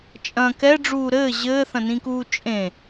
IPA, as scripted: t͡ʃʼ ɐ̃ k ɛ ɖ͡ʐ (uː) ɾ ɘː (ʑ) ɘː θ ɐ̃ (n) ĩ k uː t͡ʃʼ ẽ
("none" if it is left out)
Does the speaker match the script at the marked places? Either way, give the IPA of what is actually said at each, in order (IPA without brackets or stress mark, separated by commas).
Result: uː, ʑ, n